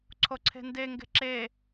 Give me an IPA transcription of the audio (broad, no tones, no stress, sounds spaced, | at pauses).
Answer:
ǀʰ o ǀʰ e̤ n d e ŋ ɡ e̤ ǁ e